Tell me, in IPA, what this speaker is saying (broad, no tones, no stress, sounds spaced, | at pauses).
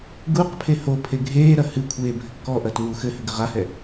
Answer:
ɡ u q pʰ e h o pʰ e ɡʱ eː ɾ ɐ h ɨ kʷʰ eː bʱ ɘ kː ɔ ʔ ɐ t w u x ɘ h ɘ ɡ ɘ ʁ a h ɛ